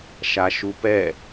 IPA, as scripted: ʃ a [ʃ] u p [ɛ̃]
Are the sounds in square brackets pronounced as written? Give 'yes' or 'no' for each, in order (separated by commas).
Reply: yes, no